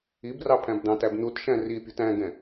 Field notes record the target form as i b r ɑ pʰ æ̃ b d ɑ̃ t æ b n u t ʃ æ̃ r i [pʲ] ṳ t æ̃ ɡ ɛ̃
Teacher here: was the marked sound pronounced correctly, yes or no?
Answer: yes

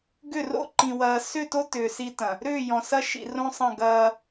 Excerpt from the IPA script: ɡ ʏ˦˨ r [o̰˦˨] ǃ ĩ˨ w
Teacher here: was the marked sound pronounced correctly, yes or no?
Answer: yes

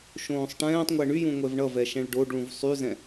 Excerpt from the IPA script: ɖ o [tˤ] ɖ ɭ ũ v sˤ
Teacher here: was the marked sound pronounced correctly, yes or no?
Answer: no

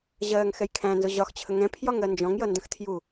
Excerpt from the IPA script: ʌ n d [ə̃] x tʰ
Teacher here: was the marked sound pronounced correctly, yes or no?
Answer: yes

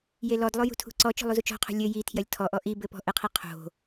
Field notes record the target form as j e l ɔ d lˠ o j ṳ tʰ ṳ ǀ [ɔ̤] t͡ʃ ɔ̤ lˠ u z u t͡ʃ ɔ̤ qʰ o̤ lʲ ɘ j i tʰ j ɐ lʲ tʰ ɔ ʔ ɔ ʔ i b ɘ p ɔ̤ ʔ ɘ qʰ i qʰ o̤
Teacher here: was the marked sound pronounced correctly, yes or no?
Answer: no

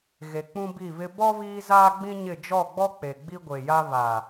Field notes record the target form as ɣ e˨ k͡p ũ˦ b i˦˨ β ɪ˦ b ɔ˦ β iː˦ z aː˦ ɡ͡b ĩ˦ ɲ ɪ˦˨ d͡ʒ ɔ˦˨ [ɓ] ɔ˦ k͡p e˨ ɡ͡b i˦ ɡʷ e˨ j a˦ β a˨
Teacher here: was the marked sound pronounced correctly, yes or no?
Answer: no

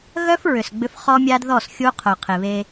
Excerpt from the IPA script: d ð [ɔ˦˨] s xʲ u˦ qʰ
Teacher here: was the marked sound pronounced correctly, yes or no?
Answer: yes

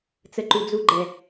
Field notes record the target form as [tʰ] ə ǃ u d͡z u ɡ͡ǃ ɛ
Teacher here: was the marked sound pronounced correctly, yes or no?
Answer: no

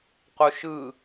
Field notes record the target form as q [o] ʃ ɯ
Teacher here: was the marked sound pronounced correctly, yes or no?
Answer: yes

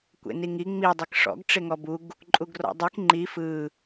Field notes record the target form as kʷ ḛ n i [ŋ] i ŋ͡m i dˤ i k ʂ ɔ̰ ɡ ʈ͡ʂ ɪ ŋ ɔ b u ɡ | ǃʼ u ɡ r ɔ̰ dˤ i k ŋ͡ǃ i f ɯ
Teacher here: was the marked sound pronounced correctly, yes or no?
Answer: yes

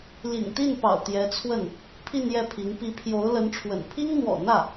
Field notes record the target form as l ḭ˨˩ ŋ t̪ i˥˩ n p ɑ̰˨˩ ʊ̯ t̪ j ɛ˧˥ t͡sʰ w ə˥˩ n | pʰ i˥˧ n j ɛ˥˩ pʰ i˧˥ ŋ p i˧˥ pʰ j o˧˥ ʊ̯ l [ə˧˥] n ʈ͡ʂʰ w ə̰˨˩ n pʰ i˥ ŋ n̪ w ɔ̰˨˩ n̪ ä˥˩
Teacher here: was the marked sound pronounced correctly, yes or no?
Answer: yes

